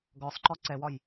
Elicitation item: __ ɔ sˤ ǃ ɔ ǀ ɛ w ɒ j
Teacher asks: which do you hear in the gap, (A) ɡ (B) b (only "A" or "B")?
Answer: A